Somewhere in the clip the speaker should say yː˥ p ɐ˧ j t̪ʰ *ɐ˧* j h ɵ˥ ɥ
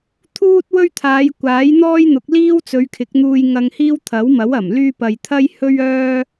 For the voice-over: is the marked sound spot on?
no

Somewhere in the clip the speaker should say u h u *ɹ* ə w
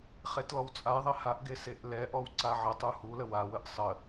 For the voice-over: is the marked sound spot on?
no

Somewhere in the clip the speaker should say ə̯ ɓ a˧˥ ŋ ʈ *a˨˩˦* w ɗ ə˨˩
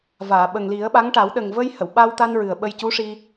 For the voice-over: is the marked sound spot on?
yes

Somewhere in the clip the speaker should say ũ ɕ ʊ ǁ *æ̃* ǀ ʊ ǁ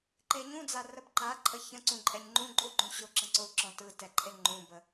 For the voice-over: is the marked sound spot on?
no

